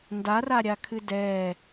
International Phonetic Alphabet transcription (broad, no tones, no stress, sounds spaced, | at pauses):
n d a r a ɾʲ a kʰ ɨ d ɛ